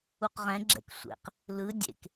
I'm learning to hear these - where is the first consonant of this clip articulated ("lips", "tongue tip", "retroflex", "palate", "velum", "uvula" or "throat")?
uvula